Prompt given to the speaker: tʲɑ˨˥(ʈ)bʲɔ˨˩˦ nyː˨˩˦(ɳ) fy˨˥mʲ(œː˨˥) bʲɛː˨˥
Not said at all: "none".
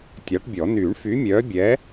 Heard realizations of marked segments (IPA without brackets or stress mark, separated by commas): ʈ, ɳ, œː˨˥